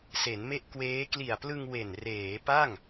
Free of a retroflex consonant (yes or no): yes